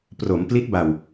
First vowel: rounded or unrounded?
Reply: rounded